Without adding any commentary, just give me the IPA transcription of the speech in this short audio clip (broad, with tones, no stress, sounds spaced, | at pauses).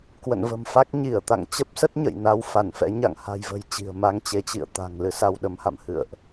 k w ə̰˧˨ n v ə̤˨˩ m f a˦˥ k̚ ɲ i˧˩ ə̯ t̪ a̰˧˨ ŋ t͡ɕ ə˦˥ p̚ s ə˦˥ t̚ ɲ ə̰˧˨ j n a˧ w f a˧˩ n f ɛ̰˧˥ ɲ a̰˧˨ ŋ h a̤˨˩ j v ə̤˨˩ j t͡ɕ i̤˨˩ ə̯ m a˧ ŋ t͡ɕ e˨˦ t͡ɕ ḭ˧˨ ə̯ t̪ a̤˨˩ ŋ l ɨ˧ s a˧ w ɗ ə˨˦ m h a̰˧˨ m h ɨ̰˧˨ ə̯ ʔ